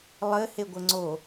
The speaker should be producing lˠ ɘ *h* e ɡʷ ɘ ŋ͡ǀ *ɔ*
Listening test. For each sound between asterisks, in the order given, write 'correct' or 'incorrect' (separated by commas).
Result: correct, incorrect